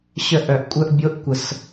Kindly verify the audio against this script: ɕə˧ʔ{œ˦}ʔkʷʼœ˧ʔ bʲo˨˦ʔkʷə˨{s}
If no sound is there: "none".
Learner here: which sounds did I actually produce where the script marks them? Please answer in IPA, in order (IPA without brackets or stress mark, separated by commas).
œ˨, s